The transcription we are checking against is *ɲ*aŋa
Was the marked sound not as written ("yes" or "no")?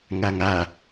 yes